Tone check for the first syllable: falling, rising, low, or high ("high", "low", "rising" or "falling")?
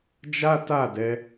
high